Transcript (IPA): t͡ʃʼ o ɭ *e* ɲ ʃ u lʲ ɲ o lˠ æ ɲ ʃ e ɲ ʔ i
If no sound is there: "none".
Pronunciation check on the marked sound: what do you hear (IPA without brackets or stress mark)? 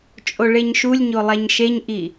e